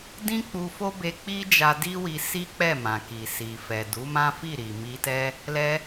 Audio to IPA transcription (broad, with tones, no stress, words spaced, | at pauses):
dĩ˦k͡pu˧fo˦be˧ k͡pi˦d͡ʒa˧di˦wi˧ si˦k͡pɛ˦˨mã˨ki˨ si˨fɛ˨ du˨˦mã˦fi˦˨ɾi˨ mi˧tɛ˦ | lɛ˧